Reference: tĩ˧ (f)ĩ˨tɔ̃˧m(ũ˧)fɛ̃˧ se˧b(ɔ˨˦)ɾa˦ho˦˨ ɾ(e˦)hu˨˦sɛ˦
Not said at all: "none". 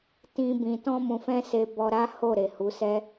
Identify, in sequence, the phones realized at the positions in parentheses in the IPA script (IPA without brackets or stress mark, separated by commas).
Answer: b, ũ˨, ɔ˧, e˨